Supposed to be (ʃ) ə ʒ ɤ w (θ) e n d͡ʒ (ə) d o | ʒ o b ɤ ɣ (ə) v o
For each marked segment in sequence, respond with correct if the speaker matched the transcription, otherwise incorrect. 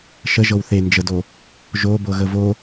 correct, correct, correct, correct

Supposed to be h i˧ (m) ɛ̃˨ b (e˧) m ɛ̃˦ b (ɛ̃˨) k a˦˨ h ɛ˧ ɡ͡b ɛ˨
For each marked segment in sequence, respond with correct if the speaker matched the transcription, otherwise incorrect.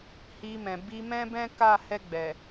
correct, incorrect: i˧, incorrect: ɛ̃˦

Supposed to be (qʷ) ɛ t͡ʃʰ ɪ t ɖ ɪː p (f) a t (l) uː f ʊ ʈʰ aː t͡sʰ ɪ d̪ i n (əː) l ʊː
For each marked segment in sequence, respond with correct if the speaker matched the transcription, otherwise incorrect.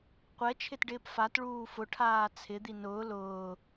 correct, correct, incorrect: ɭ, incorrect: ʊː

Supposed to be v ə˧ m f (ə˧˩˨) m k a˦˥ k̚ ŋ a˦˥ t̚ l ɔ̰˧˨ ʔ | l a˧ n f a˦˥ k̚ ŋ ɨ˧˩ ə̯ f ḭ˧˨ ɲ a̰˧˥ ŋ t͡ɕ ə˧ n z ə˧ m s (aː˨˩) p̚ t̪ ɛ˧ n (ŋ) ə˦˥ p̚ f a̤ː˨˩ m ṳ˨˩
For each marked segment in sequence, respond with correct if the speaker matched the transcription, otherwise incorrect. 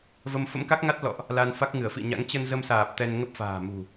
incorrect: ə̰˧˥, correct, correct

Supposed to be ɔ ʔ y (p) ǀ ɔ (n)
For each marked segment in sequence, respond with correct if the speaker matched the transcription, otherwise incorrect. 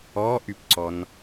correct, correct

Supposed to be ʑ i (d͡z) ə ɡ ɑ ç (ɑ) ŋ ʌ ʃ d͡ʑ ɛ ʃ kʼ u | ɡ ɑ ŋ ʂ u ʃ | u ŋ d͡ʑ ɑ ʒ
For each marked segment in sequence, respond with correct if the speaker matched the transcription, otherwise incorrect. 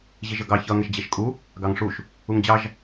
incorrect: ʒ, incorrect: ʌ

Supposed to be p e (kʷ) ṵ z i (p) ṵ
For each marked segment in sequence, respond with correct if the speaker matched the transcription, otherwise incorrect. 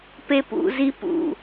incorrect: p, correct

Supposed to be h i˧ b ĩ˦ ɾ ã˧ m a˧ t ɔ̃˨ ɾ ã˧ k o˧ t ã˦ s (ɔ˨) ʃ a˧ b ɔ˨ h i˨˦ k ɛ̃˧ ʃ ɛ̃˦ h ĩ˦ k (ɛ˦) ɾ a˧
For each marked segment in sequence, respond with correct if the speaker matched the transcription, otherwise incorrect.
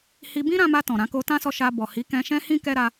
incorrect: ɔ˧, correct

